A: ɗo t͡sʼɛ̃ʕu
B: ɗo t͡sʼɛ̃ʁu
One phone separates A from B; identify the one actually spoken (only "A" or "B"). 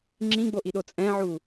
A